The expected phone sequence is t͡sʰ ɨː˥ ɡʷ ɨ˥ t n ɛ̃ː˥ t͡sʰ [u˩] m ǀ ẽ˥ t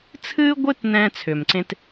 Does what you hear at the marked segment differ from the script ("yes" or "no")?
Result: yes